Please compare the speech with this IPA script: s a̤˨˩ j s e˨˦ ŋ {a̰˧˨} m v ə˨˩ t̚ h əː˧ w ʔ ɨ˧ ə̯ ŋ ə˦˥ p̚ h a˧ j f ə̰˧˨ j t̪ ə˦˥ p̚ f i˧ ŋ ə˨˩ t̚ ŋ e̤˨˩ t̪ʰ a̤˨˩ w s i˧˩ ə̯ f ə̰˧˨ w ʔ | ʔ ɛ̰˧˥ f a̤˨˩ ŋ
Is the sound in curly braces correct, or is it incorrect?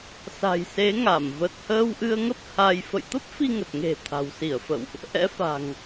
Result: incorrect